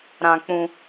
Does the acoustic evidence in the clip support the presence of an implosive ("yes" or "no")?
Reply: no